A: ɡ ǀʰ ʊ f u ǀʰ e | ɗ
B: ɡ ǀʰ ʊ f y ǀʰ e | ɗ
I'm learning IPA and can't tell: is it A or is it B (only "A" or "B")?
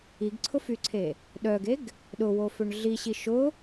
B